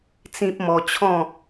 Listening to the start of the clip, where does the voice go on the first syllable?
high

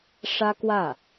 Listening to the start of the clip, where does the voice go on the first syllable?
high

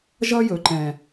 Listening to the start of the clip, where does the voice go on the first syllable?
high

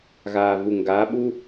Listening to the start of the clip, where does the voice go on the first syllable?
low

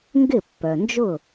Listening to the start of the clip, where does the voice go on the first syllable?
falling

